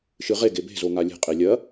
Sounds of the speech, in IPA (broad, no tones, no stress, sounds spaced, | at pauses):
ʃ ɨ ʁ e ɡ e b e̤ z o ŋ a lʲ e̤ qʼ i lʲ ɐ